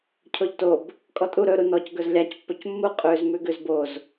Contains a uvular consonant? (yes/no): yes